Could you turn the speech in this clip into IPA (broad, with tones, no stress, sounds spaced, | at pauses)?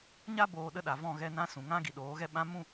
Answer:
ɲ a˦ b oː˧ ɗ ə˦ ɗ a˨ v ɔ̃˦˨ ɣ ɛ˧ n ã˦ s ũ˨ ŋ ã˦ ɡ i˨ ɗ oː˨˦ ɣ ɛ˦ ɓ ã˦ m ũ˦˨